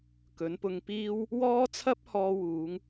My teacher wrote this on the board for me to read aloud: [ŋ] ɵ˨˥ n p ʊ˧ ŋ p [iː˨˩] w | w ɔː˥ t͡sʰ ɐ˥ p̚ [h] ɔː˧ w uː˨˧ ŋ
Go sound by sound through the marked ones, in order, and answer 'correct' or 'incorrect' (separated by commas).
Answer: incorrect, incorrect, correct